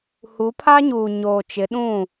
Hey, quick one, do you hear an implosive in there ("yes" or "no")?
yes